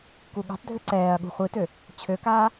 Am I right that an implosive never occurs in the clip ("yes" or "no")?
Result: no